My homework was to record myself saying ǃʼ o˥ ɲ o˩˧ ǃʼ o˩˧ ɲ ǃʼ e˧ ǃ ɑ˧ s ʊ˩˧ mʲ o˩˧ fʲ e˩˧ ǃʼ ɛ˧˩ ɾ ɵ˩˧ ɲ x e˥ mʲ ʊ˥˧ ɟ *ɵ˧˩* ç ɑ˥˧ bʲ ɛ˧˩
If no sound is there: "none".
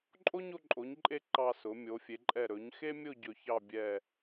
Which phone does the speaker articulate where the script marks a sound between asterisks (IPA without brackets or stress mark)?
ɵ˧˩